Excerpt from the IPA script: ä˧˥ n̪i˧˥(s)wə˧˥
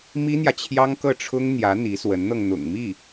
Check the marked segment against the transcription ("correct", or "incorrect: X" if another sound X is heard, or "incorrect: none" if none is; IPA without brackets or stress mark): correct